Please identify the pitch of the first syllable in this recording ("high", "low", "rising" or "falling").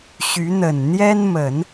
rising